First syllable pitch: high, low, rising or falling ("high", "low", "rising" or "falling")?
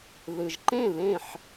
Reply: low